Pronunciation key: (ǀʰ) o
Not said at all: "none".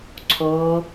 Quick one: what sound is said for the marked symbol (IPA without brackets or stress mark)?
ǀʰ